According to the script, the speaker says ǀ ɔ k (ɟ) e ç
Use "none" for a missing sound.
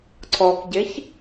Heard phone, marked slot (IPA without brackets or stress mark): ɟ